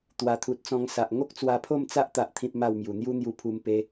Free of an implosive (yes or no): yes